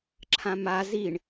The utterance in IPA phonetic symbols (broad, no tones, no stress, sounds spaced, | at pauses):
ǁʰ ã m a z i ɳ